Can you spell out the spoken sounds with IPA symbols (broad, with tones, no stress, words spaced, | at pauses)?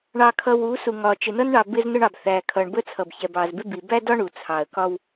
ɳɑ˨kʰʌ˨w u˨˦su˨ŋɒ˨ t͡ʃɪ˨nʌ˦nɳɑ˨ bɪ˦znʊ˦ɳɑ˨b θæ˨ kʰʌ˨ɳbə˦t͡sʰʌ˨b çɛ˨bɑ˨zbɪ˦bi˨ bæ˦dɒ˦ ɳu˨t͡sʰɑ˨ə̯kɒ˦w